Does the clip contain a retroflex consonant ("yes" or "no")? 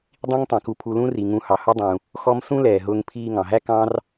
no